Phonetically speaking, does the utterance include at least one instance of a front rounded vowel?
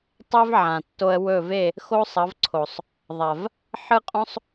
no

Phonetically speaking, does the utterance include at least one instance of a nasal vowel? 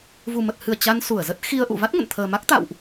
no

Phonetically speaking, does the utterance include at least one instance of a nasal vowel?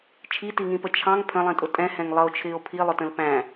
yes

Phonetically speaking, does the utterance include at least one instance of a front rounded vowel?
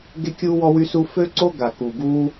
yes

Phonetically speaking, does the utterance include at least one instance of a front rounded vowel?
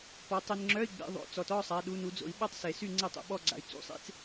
yes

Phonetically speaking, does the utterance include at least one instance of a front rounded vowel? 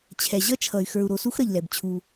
yes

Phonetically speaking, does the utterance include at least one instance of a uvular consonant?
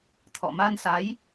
no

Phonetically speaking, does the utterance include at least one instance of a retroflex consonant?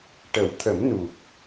yes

